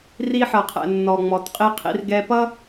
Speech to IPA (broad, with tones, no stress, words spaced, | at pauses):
ri˧ħʌ˨qʰɛ̰˨ nːɔ˨ŋ͡mɔ˨tqʼi˧qʰḭ˧r ɡɛ˧pʌ˦